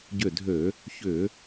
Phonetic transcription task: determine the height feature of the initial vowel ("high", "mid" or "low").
high